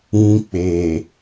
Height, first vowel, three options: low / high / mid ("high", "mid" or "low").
high